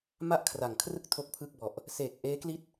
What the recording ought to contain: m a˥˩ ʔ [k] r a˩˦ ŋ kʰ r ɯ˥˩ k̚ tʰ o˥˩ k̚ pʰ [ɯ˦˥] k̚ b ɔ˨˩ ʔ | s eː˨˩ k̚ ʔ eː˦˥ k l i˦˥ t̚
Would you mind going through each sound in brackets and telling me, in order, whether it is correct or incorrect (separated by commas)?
incorrect, incorrect